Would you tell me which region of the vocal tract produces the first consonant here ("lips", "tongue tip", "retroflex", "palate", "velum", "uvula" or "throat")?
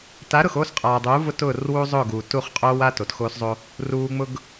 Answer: tongue tip